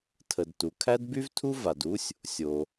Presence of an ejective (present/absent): absent